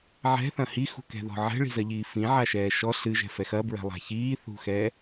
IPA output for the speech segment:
ʕ ɛ̤ θ ɐ̃ h i x ṳ k ɛ̤ ð ɔ̤ ʕ ɛ̤ ɭ i̤ z ɐ ʎ iː f ĩ ʕ a ʃ ɛː ʃ ɔ ɬ ɨ ʒ ɛ̤ f ɛ x ɐ b ɹ ɛ̤ lˠ a̤ ç iː θ ṳ x ɛː

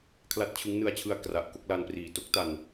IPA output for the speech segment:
kʰ l a˥˩ t̚ t͡ɕʰ ɯ˦˥ ŋ n ɯ˧ a̯ t͡ɕʰ ɯ˧ a̯ k r a˨˩ ʔ k o˦˥ k̚ l a˧ n p r iː˨˩ t o˦˥ k̚ t a˨˩ n

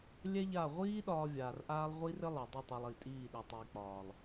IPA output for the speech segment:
lʲ ɛ˦ ʎ a˦˨ ʁʷ iː˦ ɗ ɒː˦ vʲ aː˨ r ʔ aː˦ lˠ ʁʷ i˦ r ɘ˦ lˠ ɛ˨ dˤ i˦˨ tˤ ɛ˨ lˠ i˨ tʼ iː˦˨ ɗ ɛ˨ tˤ iː˨ k͡p ɒː˨ lˠ

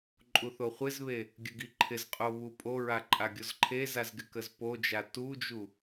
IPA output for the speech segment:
ǃʼ u θ o χʷ ɪ z β e | ɡʲ ə ɡ i ǃʰ ɪ z qʼ o β u pʼ o ɹ a ǃʼ a ɡʲ o z ǃʰ e z a z ɡ ɪ k ə z p o d͡ʒ a t u d͡ʒ u

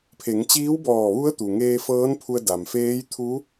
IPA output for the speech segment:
pʰ e˩˧ ŋ t͡ɕ iː˧˥ w b ɔː˧˩ ʋ u˧˥ ə̯ t̪ u˩ ŋ eː˧ f ɤː˧˥ n pʰ u˧ ə̯ d a˩ m f eː˧˥ j t̪ʰ u˧˥

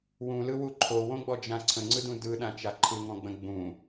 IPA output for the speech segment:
w ũ l ɯ w u ǃʰ o w õ ɡ͡b ɔ d͡ʒ ã ǀʰ ə̃ ŋ͡ǀ ɯ d ũ d ɯ ɗ ã t͡ʃ a ǃʰ ɯ ŋ ɔ̃ ɡ͡b ə̃ ɡ͡b ũ

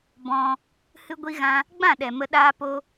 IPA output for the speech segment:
b ɔ̃˧ | h ɨ˦ ɡʷ i˦ ɣ ã˦ | ɡ͡b ã˦˨ ɗ ɛ˨ m ə˦ ɗ aː˦ p o˦

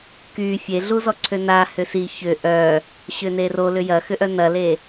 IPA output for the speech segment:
k y fʲ e ɮ u z ɔ ǀʰ ø n a h ʏ s i ç ʏ ʔ œ | ɕ ʏ n e r o l ʏ j ɐ x ʏ ʔ œ n ɐ l e

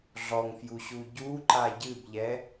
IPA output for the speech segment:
ɮ ɔ ŋ f j u ɕ u ɟ u ǃ a ɟ ɨ b ʎ ɛ

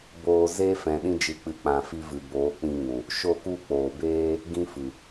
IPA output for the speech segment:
b oː˧ z e˦ f ɛ̃˨ ɗ ĩ˧ d͡ʒ ɨ˨˦ k͡p ɨ˨ k͡p ã˨ f i˧ v ɨ˨ b oː˨˦ k͡p ĩ˧ ŋ ũ˨ | ʃ o˦˨ k u˦˨ k͡p oː˨ b eː˦ | ɡ ĩ˦ f ɨ˨

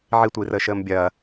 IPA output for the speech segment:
ʕ i tʷ iː r əː ʃ əː m bʲ ɐː

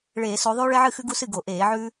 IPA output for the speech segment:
ɭ eː˧˩˧ s o˨˦ ðˤ ʉː˦ ɭ e˦ ʕ ɨ˥˩ x ʉ˦ ɡ u˦ s ɨ˥˩ ɡ o˧˩˧ ʔ eː˧˩˧ ʕ ʉː˦

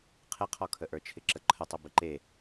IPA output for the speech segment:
qʰ ɪ qʰ ɔ kʰ ə ʔ ə˞ t͡ʃʰ ɪ ǁ ə ǃʰ ə tˤ ə b ɪ ǃ e

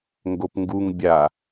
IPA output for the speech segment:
ŋ ɡ o p ŋ ɡ u ŋ bʲ a

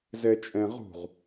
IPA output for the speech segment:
z ɛ t͡ʃʼ ɛ̃ ʁ ṳ ʁ

